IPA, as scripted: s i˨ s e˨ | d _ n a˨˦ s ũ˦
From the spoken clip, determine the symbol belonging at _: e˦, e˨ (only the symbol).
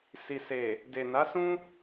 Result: e˨